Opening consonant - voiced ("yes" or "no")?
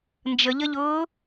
yes